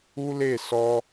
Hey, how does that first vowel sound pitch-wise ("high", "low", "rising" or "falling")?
high